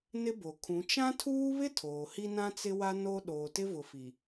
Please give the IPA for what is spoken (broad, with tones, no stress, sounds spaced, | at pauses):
n ɪ˦ b o˨ kʰ ũ˨˦ t͡ʃ ã˦ tʰ uː˦ β ɪ˦ tʰ oː˨ h i˦ n ã˦ t͡s ɪ˦ w a˦ n o˦ ɗ oː˨ t ɪ˦ v ʊ˨ f i˨